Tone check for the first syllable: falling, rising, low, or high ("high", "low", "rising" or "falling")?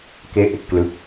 falling